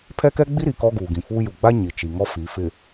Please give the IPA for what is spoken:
pʰɛ˦kɛ˦ɡ͡bi˦ɾi˨ kɔ˦ɡuː˨ɡĩ˨fuː˦ ju˨ɡ͡ba˦ ɲi˨t͡ʃi˨ŋɔ˦ fi˨˦ fɪ˨

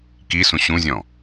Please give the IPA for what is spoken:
kisũ ɕũzʲɔ̃

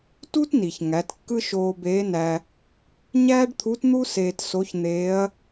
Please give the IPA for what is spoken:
tu˥tni˩ç ŋæ˩˧tkːɯ˥ ʃoː˧beː˧˥næ˧ | ɲæː˥ɖt̪ʰu˧˥tn̪u˥ seː˧tso˧˥ç n̪eː˧˥ɐ̯

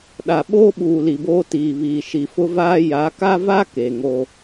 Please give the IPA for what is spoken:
ɗa˨ ɓoː˦ ɓuː˨li˨boː˦ tiː˨ βiː˨ ʃi˨fʊ˦vaː˦ ja˨˦ka˦va˦ ke˨ŋo˦

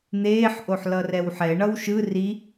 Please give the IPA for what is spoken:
n̪eːħʔoħ lʌrɛwħɛ ɳʌwʃɯ ri

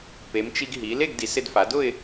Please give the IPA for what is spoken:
pe˩˧mt͡ʃi˧ɡ ɦi˩˧le˥˧ɡdi˩˧ sɪ˧dfa˩˧dʊ˥˧ɪ̯

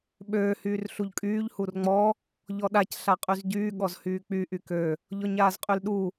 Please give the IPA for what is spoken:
ɓøː hyːrɬuʎkʼyːʎ hurŋ͡mɔ | ʎɔɗac ɬaqʼyzɟyː ɠɔzhyːk͡py ʔykø | ʎɔɲaːzqʼylɗu

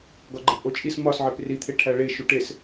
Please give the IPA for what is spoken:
ɡɒɡ͡ǃepʔot͡ʃʼis mɒsʕep rit̪ʰe ʈʰæɭeʃu ʈes

